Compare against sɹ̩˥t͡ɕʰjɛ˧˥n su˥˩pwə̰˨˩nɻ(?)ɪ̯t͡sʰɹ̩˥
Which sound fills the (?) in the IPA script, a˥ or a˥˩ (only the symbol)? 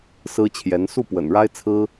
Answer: a˥